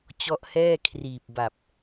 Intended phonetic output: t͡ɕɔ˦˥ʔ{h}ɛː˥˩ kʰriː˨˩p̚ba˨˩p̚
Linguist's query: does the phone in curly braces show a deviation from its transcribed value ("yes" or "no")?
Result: no